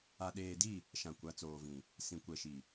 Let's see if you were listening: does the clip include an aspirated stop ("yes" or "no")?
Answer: no